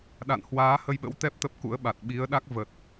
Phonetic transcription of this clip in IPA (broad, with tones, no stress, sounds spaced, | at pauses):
ɗ a̰˧˨ n h w aː˨˦ h ə˧ j ɓ ə̰˧˥ w t̪ ɛ˦˥ p̚ t̪ ə˦˥ p̚ k ṵ˧˥ ə̯ ɓ a˨˩ t̚ ɓ i˨˦ ə̯ ɗ a˦˥ k̚ v ə˨˩ t̚